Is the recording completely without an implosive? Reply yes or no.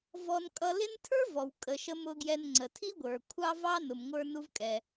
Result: yes